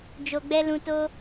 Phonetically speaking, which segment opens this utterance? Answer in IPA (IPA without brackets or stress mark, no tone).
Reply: d͡ʒ